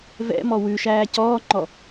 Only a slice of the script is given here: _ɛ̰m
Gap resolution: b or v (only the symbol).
v